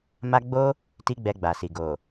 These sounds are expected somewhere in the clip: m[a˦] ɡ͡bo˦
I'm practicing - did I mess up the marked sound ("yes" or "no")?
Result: no